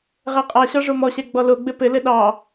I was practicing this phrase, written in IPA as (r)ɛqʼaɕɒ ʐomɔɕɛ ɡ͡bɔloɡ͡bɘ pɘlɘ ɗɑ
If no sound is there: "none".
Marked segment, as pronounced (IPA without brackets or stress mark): ʁ